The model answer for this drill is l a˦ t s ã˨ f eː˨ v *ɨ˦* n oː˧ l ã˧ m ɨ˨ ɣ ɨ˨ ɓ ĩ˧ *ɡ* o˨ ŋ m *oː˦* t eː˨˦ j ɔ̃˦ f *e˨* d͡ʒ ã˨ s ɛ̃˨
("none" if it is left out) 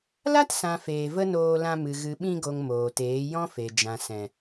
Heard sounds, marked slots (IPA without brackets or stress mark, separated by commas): ə˦, ɡ, oː˨, e˨